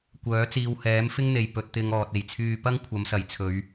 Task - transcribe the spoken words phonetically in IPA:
kʷ œː˨˥ t͡s iː˧ w h ɛː˨˥ m f ɪ˥ ŋ n̪ e˨ j p ɵ˧ t̚ t̪ ɪ˧ ŋ ɔː˨ t̚ e˨˩ j t͡sʰ yː˧ p ɐ˥ ŋ kʷʰ ɐ˨˧ m s ɐ˨˩ j t͡sʰ ɵ˨˧ ɥ

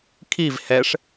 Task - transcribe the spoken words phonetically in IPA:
kʰ i v h ɛ ʂ

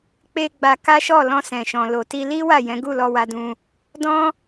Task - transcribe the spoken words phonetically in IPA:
k͡p e˧ ɡ͡b a˧ k a˦ ʃ ɔ˦˨ l ɔ̃˧ s ɛ̃˨ ʃ ɔ̃˨ l o˨ t i˧ l i˦ w a˦˨ j ɛ̃˨˦ ɡ u˦˨ l ɔ˧ w a˧ d ũ˧ | d ɔ̃˦

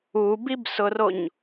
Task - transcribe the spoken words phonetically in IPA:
u b i b s ʊ r o ɲ

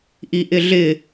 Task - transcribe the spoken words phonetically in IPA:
ʔ i ʔ ɪ ɮ ɪ

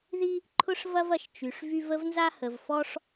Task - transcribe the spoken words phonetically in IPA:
ð i˥ | ǃʰ ʊ˥ ʂ v ɐ˥ v ɐ˩ ʃ t͡ʃ y˩ ʂ v y˥ v ə˥ v n z a˥ h ə˩ v f ɔ˥ ʂ

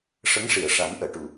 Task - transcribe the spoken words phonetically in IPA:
ʂ ə˧˥ ŋ ʂ i˨˩˨ ə̯ ʂ a˨˩˦ n ʔ əː˨˩˨ ʈ u˨˩

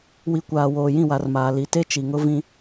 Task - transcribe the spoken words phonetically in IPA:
w i˨ kʷ aː˨ w oː˨ j ĩ˦˨ w a˨ r m aː˨ l i˨ t e˦ t͡ʃ i˨ ŋ ʊ˦ v ĩ˦

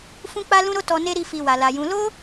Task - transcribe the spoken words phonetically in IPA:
f ũ˦ k͡p a˦ l ũ˦ ɾ o˦ t ɔ˧ n e˦ ɾ i˦˨ f i˨ w a˨ l a˨ j ũ˨˦ l o˦

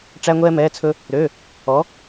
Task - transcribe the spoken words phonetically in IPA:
ʈ͡ʂ æ˧ ŋʷ ɛː˧ m ɛː˩˧˩ t͡sʰ ɵ˧ | ɾ ø˩˧˩ | ɔ˩˧

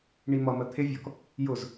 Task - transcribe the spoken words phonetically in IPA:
ɳ i m ʌ m ɜ t̪ʰ ɪ vʲ ɔ k | j ʊ z

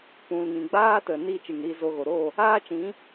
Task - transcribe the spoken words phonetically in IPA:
p ũ˨ l ŋ ĩ˨ ɡ͡b aː˦ t ə˨ n iː˦ t͡ʃ ɨ˨ ŋ ɾ iː˧ z o˧ ɣ o˨ ɾ o˦˨ | aː˦ t͡ʃ ĩ˨˦

